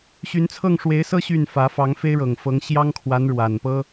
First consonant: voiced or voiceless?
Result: voiceless